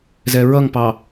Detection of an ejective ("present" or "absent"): absent